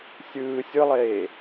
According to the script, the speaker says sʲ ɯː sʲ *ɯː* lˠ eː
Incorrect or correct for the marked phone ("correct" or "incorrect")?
incorrect